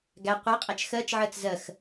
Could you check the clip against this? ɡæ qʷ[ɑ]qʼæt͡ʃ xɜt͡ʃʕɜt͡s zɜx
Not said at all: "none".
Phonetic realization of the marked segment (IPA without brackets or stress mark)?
ɑ